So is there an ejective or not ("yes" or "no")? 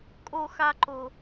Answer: yes